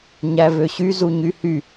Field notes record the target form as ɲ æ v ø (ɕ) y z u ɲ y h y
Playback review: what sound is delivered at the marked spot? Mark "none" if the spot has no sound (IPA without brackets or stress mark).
ɕ